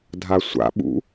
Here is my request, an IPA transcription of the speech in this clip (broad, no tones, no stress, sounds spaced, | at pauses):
dʱ a sʷ a̰ ɓ ṵ